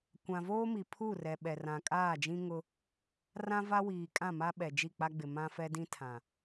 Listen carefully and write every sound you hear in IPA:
kʷã˨voː˦mi˨ pʰu˦˨ rɛ˨ɓɛ˨ rã˨kʼaː˦˨d͡ʒĩ˦ ŋʊ˦ | rã˦va˦ wiː˨ kʼã˦˨ma˦ɓɛ˨ d͡ʒi˦˨k͡pa˦ɡ͡bɪ˨ mã˦fɛ˦dĩ˦ tʰã˨

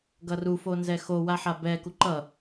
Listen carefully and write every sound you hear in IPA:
ɡʌru fonzɛxo waħabɛ kuǃʌ

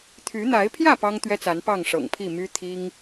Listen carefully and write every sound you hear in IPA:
t̪ʰy˨˦n̪a˨˦ɪ̯pʰjä˥˨ pɑ˦ŋt̪ɥɛ˦t͡sa˨˦n pɑ˥˨ŋʂɤ̰˨˩ŋpʰi˥˨ my˦ t̪ʰi˦ŋ

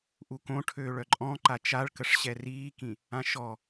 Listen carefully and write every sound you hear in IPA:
ʔukõʈʰøːɭ œǃʼɔ̃ ǃat͡ʃaɭkəʂ ɕɛriːkĩ | ãʃɔ

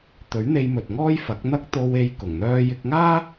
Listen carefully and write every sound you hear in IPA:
t̪ɵ˨˥ɥn̪e˧jmɵ˨t̚ ŋɔː˥jfɐ˨˥k̚n̪ɐ˥k̚ t̪o˧we˧j kʊ˨˩ŋn̪œː˧jɪ˧k̚ŋaː˥

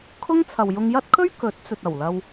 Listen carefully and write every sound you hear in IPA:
kʰʊ˥ŋ t͡sʰɐ˨wjʊ˧ŋjɐ˥t̚kʰɵ˥ɥ kɵ˨˥t̚t͡sɵ˨t̚ ɐ˨˩wlɐ˧w

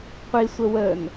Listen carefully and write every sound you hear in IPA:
qʷisʷə wən

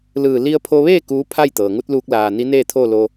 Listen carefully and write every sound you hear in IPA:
lɯː˧˩li˧ə̯pʰo˧ʋeː˥˨ kuː˧˥pʰa˥˨jt̪ɤː˩ ŋu˧˥t̚luː˧k̚ laː˧˩ ni˧˥neː˥˨t̪ʰoː˥˨lo˧

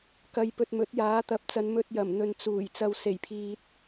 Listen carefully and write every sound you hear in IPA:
kɐ˨jpɵ˨t̚mɵ˨˥t̚ jaː˨˥t̪ɐ˨p̚t͡sɐ˨˧n mɵ˧t̚jɐ˨˩m n̪ɵ˨nt͡suː˨˩j t͡sɐ˨wse˨˩jpʰiː˨t̚

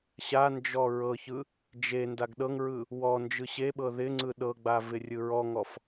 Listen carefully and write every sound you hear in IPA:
ɕand͡ʒɔ ɹɤçɯ | d͡ʒe ndaɡɗɤŋɹɯ | wɔ nd͡ʒɯɕeɓɤ ðɪŋ͡ǀɯ ɗɤɡ͡ba vɪrʲɯɹɔŋɔf

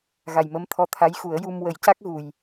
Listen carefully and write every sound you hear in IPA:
ɣa˨˩jmə˧˥mt̪ʰɔ˧˥ t̪ʰa˧˥jxu˨˩˦ə̯ju˧m wə˨˩˦jca˦˥k̚ ɣu˨˩j

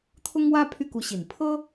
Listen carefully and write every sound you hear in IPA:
t̪ʰʊ˥ŋwä˥ pʰy˥˩ku˧˥ɕi˨˩n pʰɤ˥

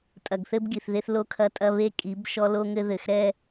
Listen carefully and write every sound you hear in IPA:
tʼɐ˨ɡθɘ˦bɡi˨θ ðe˦θlo˦kʰɐ˦ tʼɐ˦βe˦ kʼi˨˦b ʃɔ˦lo˦ŋɘ˦ ðɘ˨xɾɛ˦

